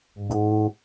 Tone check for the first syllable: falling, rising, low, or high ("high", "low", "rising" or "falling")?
high